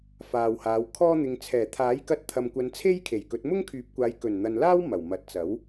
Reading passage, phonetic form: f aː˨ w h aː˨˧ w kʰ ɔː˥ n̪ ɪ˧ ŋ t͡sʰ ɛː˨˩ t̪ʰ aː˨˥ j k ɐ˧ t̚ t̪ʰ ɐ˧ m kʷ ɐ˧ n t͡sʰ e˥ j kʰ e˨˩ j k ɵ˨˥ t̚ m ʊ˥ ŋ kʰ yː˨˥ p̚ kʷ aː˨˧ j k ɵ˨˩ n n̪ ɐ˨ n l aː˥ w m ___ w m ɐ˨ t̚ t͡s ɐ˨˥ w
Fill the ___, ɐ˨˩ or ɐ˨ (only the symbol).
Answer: ɐ˨˩